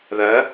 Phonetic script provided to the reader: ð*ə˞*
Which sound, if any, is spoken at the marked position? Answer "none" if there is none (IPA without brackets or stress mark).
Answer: ɐ